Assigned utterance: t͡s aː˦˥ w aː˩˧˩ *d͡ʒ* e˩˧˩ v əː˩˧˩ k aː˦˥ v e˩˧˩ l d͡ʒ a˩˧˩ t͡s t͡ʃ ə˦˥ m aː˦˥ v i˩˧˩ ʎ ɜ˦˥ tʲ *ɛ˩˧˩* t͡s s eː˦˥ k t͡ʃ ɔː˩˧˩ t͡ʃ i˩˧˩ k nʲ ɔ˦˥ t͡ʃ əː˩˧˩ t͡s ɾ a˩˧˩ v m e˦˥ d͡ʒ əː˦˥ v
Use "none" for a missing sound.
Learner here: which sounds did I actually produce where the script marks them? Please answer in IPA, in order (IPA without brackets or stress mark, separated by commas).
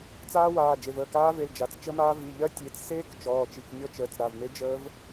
d͡ʒ, e˩˧˩